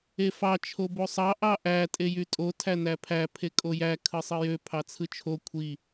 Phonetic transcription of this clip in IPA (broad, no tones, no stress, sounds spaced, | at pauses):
e f ɑ t͡ʃʰ o b o sˤ ɑ ʔ ɑ ʔ æ tʼ e j y tʼ o tʰ æ n æ pʰ æ pʰ e kʼ o j æ kʰ ɯ sˤ ɯ j ø pʰ ɑ t͡sʰ ɯ t͡ʃʰ o kʷʰ i